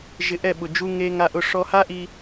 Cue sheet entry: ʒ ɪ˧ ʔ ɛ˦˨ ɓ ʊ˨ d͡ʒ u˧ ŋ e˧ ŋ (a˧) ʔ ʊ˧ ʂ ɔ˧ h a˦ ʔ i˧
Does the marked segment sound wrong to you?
no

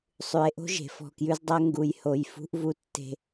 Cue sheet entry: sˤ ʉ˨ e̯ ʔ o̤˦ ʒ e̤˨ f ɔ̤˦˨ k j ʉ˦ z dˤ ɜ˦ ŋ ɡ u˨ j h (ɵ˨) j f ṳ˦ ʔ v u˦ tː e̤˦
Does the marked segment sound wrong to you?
yes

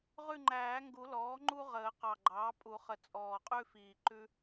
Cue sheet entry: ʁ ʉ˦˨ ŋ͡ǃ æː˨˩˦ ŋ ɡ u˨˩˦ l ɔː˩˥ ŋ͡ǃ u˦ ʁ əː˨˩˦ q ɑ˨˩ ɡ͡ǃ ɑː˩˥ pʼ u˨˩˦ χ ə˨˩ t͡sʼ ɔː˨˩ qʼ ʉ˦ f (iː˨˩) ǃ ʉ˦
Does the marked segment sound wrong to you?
no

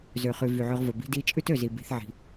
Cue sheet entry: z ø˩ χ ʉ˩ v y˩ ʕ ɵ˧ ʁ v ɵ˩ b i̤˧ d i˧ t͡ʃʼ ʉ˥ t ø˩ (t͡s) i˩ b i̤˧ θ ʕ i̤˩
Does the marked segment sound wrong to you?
yes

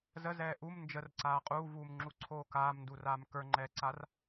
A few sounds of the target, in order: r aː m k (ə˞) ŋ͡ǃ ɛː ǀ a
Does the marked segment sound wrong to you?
no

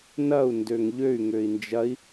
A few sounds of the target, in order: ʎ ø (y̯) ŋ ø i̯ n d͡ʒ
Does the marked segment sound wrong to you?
no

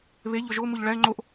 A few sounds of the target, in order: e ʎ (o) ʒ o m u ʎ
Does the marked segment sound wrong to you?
no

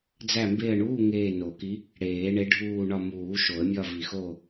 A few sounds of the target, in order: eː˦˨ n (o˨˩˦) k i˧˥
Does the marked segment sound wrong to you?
no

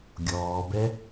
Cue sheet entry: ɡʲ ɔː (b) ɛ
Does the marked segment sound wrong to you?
no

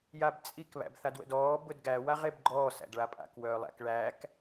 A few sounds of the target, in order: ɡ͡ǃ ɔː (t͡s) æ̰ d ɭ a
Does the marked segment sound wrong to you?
yes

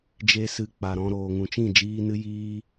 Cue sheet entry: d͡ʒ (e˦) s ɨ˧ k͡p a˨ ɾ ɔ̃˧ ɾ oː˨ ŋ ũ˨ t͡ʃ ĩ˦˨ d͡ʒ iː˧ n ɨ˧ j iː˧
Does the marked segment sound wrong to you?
no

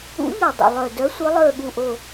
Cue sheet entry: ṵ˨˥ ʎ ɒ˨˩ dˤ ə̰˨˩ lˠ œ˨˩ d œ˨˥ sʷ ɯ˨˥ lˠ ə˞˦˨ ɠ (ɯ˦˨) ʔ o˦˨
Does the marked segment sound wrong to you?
yes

